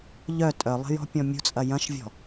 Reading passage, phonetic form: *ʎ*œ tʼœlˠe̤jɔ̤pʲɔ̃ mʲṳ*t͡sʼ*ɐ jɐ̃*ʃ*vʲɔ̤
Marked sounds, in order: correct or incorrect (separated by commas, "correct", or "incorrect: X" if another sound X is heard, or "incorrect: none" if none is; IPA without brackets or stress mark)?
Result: correct, correct, correct